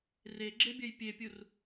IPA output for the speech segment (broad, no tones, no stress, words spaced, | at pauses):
reɡ͡ǁe bʲɐjpʲepʲur